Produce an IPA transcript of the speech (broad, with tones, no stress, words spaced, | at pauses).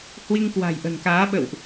hwi˧ŋkwa̤˨˩jʔə̤˨˩nkaː˨˦ ɓə̰˧˨wʔ